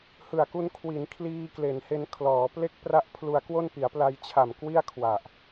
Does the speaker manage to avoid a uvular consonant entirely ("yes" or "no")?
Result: yes